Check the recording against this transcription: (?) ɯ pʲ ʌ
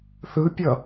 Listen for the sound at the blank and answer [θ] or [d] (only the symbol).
θ